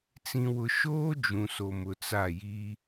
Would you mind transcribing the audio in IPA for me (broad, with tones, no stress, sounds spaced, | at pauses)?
t͡s ĩ˨ w ʊ˨ ʃ oː˦ d͡ʒ ũ˨ s o˨ m ʊ˨ t͡s a˦˨ j i˦